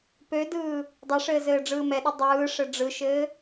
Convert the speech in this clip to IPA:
p ø d ɯː | dˤ ɛ ʂ ɘː z ɘː ɖ͡ʐ ɯː m ɛ ɗ ɐ dˤ ɯː ʂ ɘ ɖ͡ʐ ɯ ʃ ɘː

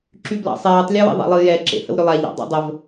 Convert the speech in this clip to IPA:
ǁ y b l ɑ̰ sˤ ɛː tˤ lʲ ɛ w ḛ ðˤ a̰ lˠ ɨ j ɛ ǁ ḛ h ə̰ w ɾ ʏ lˠ a ʎ ɑ̰ dˤ a̰ dˤ ə v

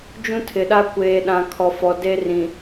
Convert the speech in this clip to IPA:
d͡ʒ ũ˦ tʰ ɪ˨ ɗ a˦ kʷ eː˨ ɗ ã˨ kʰ ɔ˨ f ɔ˨ d e˦ r ĩ˨

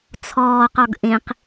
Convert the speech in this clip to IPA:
t͡sʰ ɔː q ɔ ɡ ʔ ẽ q

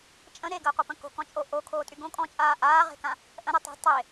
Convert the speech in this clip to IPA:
t͡ʃʼ ə̃ ɾ e ɡ əː qʷ ə p ə̃ k o̤ k ɔ̃ t͡ʃʼ o ʔ o kʰ oː tʼ y ɡ õ kʼ ɔ̃ t͡ʃʼ aː ʔ aː ʁ e̤ k ã | ʔ ə̃ ɾ e tˤ a̤ tˤ e

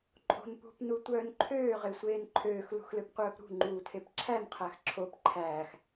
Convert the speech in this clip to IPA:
ǃʼ o̤ n p ṳ p n u tʷ œː n ǃʰ øː ʁ e sʷ eː n ǃʰ øː x l ṳ x l ø p qʷ œː p ɾ ṳ ŋ͡ǃ uː tʰ e p ǁʰ æ n qʰ æ x ǁʰ o p ǃʰ æː x

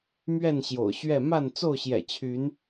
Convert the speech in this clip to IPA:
m ɥ ɛ˥˨ n ɕ j o̰˨˩ ʊ̯ ɕ ɥ ɛ˥˨ m a˥˨ n t͡s o˥˨ ʊ̯ ɕ j ɛ̰˨˩ t͡ɕʰ y˨˦ n

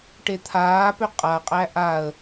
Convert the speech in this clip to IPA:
ʈ e t̪ʰ aː p ø qʼ a qʼ æ ʔ a ə̯

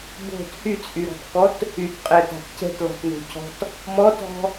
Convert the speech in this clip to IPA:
b o̤ t h y t͡sʼ y ɾ ɔ̤ t k ɔ t | y t qʼ ɛ t a̤ t c ɛ̤ t l ɔ̤ t n o̤ cʰ ɔ̤ t | m ɔ t ɔ̤

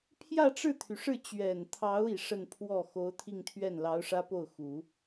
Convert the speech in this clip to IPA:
pʰ j ä˥˧ ʈ͡ʂ ɻ̩˥˩ t̪ʰ y˩ ʂ ɻ̩˥˩ t͡ɕ ɥ ɛ˨˩ n t̪ʰ ɑ˧˥ ʊ̯ i˨˩ ʂ ə˥˧ n pʰ w ɔ˥˩ x o˧˥ ʊ̯ t̪ʰ i˥˧ ŋ t̪ʰ ɥ ɛ˥˩ n l ɑ˧˥ ʊ̯ ʂ ä˥ p o˥˩ ʊ̯ x u˨˩˦

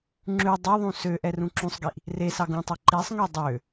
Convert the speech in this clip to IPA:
ŋ͡ǁ ʉ dˤ ʉ ðˤ ũ s ø ʔ ɛ r ũ ǁ ũ sˤ ɡ i ʔ | r e s ɑ ɡ ũ tˤ œ ǃ i sˤ ŋ ø dˤ ø

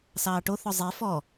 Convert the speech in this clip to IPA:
s ɑː ʈ o θ ɔ zˤ e f ɔ

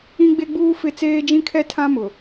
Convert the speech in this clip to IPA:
ĩ˦ ɡ͡b e˦ ɡ͡b uː˦ f ɪ˦˨ t͡s eː˦ d͡ʒ ĩ˦ kʰ ɛ˦ tʰ ã˦ m ʊ˨

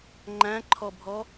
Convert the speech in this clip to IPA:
ŋ͡ǃ æ̃ ǃʰ ɔ bʱ ɔ

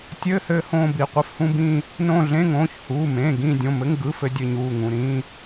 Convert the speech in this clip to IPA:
tʲ ɘː˧˥˧ h ɘː˦˨ h õː˦˨ b i˩˧˩ qʷ ɘ˧˥˧ f h ũ˧˥˧ b ĩː˦˨ | n õː˦˨ ɮ ẽ˧˥˧ ŋ õː˩˧˩ ç h uː˩˧˩ m ẽː˩˧˩ ɡ ĩː˦˨ dʲ õ˩˧˩ m ɘ˧˥˧ ŋ ɡ ɯ˧˥˧ f ɘ˦˨ dʲ ɘ˦˨ ɲ uː˩˧˩ ŋ ũ˩˧˩ ɾ ĩː˧˥˧

